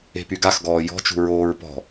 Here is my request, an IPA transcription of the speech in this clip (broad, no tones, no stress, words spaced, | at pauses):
e̤pyɡaxɡɔː jɔ̤t͡ʃṳ ɹoːɹpɔ̤